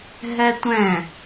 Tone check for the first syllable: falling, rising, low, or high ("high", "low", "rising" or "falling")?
high